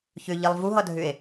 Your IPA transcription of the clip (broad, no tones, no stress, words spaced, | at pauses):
çʏʎilˠ vuɦʌdʱʏe̯